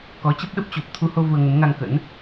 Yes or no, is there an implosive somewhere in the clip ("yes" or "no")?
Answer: yes